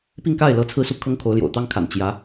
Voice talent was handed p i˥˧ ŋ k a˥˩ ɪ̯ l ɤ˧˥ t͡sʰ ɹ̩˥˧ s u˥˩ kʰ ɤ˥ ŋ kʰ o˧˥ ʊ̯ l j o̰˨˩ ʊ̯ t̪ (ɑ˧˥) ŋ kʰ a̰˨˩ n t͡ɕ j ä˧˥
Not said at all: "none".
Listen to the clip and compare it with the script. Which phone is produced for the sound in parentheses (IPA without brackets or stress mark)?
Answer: ɑ˥